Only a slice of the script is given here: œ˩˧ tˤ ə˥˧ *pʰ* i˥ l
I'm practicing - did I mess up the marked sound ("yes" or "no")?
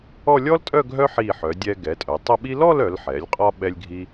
yes